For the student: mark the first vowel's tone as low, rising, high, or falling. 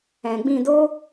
low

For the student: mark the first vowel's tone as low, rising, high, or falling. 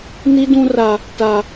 high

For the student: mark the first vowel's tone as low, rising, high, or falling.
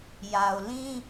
low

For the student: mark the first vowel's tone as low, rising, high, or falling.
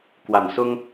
low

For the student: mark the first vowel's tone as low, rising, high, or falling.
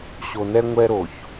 low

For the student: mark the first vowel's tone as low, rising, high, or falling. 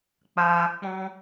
low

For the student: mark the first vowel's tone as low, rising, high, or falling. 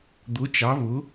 rising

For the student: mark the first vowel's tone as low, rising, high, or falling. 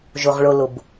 low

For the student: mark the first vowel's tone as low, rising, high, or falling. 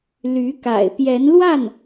rising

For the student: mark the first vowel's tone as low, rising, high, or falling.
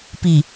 low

